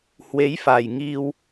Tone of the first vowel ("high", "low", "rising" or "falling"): rising